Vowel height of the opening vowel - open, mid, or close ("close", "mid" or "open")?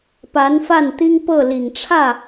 open